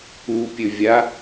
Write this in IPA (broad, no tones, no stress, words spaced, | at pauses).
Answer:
upʲɵvʲa